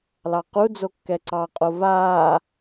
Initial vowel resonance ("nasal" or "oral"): oral